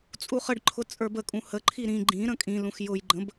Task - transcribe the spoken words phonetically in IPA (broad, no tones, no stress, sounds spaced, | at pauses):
t͡sʼ u χ ə ɖ ǃʰ ʊ t͡sʼ ə˞ b ə kʼ ũ h ə ǃʰ i ɾ ĩ ɡ͡ǃ ĩ ɾ ə̃ kʼ ĩ l ũ x j ʊ j ɡ͡ǃ ə̃ b